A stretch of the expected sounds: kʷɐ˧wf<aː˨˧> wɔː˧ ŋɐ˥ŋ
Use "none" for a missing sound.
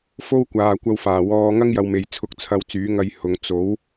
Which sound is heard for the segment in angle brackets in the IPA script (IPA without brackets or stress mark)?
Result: aː˨˩